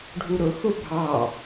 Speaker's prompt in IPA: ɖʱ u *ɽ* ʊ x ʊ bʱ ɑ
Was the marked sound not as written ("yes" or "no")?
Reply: yes